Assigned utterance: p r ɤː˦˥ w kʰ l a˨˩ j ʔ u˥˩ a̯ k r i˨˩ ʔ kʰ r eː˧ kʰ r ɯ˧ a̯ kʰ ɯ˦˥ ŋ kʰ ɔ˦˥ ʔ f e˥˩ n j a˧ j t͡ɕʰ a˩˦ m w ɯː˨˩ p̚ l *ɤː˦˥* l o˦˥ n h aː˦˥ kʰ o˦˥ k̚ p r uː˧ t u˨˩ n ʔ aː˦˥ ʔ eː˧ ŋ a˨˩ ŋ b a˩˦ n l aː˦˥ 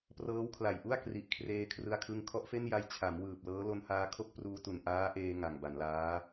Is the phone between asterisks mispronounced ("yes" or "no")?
no